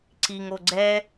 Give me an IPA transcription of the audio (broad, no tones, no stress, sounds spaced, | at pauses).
ǀ i ŋ o ɡ͡ǀ ɛ